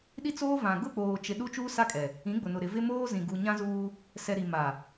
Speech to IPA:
ɗ i˦ t͡s oː˦ v ã˨ ɡ ʊ˦˨ k͡p oː˨ t͡ʃ ɪ˨ ɗ u˦ t͡ʃ uː˦ s a˦ kʼ ɛ˨ | ĩ˨˦ ɡ͡b ʊ˨ n ʊ˨ ɾ ɪ˨ v ɪ˦ m oː˦ z ĩ˨ ɡ u˨ ɲ ã˦ z uː˦ | s ɛ˨ ɾ i˨ m a˨

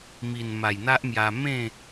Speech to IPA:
m i˨˩ n m a˨˩ j n̪ a˦ ʔ m j a˧ m ẽ˥˧

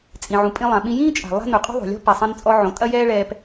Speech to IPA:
t͡sʼ ĩ˩ ʕ ũ˩ pʼ ĩ˧ lˠ ã˩ ɓ ĩ˧ j ĩː˥ t͡ʃʼ a̤˩ lˠ a̤˥ n u˩ qʼ ṳ˥ ðˤ o̤˩ lʲ ɔ̤˥ p ɛ˩ sˤ ɛ̃˧ n t͡sʼ ɔ˧ ʕ õ˩ tʼ ɐ˥ j ɛː˥ ɭ ɛː˧ p

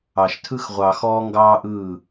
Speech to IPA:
ɑ˨ ʃ tʰ ɯ˦ x ʁʷ ɑ˨ x ɔː˦ ŋ ɡ ɑː˦ ʔ ɯː˦˨

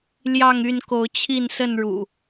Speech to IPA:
l j ɑ˥˨ ŋ y˥˨ n k o˨˦ ʊ̯ t͡ɕʰ i˥˨ n s ə˥˨ n ɻ ṵ˨˩

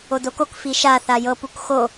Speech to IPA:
o d o k o k f i ʃ a θ a j ɤ p u k x o

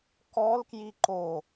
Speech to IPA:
k ɔ l k j i ǃ o

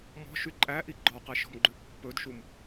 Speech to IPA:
m ɔ̤ ʃ y ǃʼ æ ʔ i ɡ͡ǃ ɔ q ɛ ʃ ɔ̤ m ɡ͡ǃ ʉ pː ɵ d ʃ u m

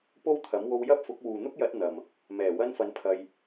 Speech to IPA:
p o˥ w t̪ʰ ɐ˨˥ m w o˧ w j ɐ˥ p̚ f ʊ˨˥ k̚ w uː˨ n̪ ʊ˥ k̚ j ɐ˨˥ t̚ n̪ ɐ˨ m | m ɛː˨˩ w ɐ˥ n f ɐ˧ n pʰ ɐ˧ j

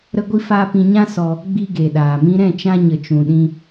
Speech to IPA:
ɾ ə˦ ɡʷ i˦ f aː˦ p ĩ˧ ɲ ã˦ s ɔ˧ | ɡ͡b i˧ ɡ e˨ ɗ aː˨ m ĩ˧ ɾ ɛ̃˦˨ t͡ʃ ã˧ ɲ ə˨ t͡ʃ ũ˨ ɗ ĩ˧

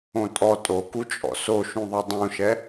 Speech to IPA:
õ tʼ ɔ tʼ o k u t͡ʃʼ ɔ̰ s o ʃ ũ ðˤ ɛ dˤ ũ ʃ ɛ

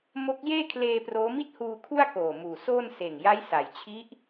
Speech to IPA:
m o˦˥ k̚ j eː˥˩ kʰ l eː˧ p r oː˦˥ m i˥˩ t̚ h uː˧ kʰ u˥˩ a̯ k oː˨˩ m uː˨˩ s oː˥˩ n s eː˨˩ ŋ j a˦˥ j s a˩˦ j t͡ɕʰ i˦˥ ʔ

